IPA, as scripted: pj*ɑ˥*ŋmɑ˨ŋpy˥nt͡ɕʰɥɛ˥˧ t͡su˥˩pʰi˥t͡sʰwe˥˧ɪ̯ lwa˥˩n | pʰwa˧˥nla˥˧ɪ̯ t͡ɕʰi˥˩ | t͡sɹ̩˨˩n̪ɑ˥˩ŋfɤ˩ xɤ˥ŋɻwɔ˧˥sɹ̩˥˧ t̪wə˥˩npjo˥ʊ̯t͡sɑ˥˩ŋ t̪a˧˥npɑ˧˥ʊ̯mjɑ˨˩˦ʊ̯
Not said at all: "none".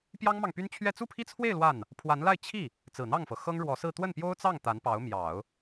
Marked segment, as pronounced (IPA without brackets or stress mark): ɑ˥